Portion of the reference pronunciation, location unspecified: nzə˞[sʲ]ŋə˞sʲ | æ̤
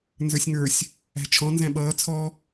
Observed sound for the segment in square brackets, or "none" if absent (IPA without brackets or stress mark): sʲ